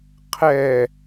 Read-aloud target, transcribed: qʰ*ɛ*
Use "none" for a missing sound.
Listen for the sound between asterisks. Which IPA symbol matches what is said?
ɛ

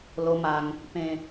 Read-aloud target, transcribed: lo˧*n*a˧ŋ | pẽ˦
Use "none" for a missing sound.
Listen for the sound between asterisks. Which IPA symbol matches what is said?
m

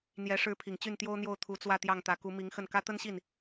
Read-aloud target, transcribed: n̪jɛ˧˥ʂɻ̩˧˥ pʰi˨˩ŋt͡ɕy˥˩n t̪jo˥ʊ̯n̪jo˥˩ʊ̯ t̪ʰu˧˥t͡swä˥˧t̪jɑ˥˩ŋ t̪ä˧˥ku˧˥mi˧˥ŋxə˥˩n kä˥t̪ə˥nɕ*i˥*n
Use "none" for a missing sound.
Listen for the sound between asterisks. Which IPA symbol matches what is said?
i˥˩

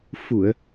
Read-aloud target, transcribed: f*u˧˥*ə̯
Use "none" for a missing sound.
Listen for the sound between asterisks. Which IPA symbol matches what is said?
u˨˩˨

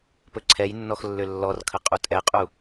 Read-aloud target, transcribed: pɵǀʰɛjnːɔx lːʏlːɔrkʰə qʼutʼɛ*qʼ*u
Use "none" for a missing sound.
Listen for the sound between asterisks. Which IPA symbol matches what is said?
qʼ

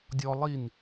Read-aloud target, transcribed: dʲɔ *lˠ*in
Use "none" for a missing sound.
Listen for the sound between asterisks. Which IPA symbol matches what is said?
lˠ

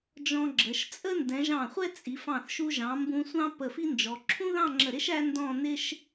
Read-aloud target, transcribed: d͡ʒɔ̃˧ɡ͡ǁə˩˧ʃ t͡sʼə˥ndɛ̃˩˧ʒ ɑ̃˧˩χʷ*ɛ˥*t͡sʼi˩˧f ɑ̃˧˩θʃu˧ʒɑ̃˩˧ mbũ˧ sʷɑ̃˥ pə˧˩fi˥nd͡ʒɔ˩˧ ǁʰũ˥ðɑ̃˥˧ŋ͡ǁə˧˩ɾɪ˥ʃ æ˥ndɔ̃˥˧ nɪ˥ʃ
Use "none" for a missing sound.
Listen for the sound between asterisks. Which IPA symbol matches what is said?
ɛ˥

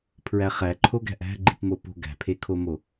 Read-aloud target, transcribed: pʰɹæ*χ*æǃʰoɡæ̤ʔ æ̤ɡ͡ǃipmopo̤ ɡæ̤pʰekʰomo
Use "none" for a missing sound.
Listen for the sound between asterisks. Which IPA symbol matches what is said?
χ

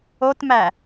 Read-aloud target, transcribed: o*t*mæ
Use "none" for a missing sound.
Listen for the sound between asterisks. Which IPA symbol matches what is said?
t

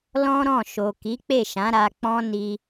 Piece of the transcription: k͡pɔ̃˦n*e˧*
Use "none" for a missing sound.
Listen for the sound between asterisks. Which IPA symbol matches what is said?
i˧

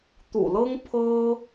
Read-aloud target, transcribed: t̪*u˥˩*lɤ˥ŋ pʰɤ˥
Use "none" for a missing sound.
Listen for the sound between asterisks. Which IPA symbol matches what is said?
ṵ˨˩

